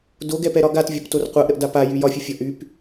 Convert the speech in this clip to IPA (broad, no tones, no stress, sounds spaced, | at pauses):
d o ɡ ɛ p ɛ ɾ ɒ ɡ a t vʲ ɒ p t o r qʷ a ʔ ɾ ə ʔ d a p a j y j ɒ fʲ ə fʲ ɒ ʔ y p